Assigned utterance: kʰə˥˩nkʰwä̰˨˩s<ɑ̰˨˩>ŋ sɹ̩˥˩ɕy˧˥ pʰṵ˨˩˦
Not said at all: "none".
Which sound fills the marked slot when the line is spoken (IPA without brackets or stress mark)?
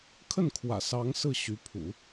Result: ɑ˧˥